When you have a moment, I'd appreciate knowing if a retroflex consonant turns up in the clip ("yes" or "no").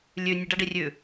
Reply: yes